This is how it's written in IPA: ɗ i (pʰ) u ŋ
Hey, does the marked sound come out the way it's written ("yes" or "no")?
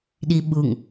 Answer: no